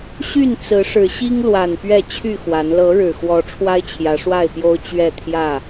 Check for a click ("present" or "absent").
absent